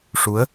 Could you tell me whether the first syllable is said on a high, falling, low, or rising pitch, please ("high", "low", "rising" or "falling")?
rising